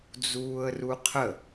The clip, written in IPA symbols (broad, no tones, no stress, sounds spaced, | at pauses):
d͡z uː ə̯ r u qʰ ə